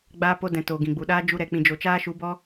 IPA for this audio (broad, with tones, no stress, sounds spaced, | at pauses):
ɡ͡b aː˧ p o˧ d ɛ̃˨ t oː˨ ɡ ĩ˨ ɡ͡b u˨ ɗ aː˦ d͡ʒ u˧ ɾ ɛ˨ k͡p ĩ˨ d͡ʒ o˨ t͡ʃ aː˧ ʃ u˨˦ b ɔ˦